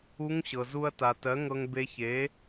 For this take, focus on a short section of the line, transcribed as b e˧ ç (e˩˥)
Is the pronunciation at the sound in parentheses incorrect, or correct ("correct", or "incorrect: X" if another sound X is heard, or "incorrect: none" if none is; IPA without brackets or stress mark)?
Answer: correct